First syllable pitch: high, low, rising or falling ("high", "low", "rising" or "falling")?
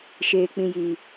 low